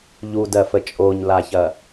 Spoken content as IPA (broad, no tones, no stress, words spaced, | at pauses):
ʎudɜfə t͡ʃʼoɲlaçɐ